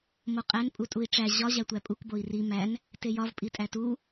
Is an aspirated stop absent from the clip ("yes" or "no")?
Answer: yes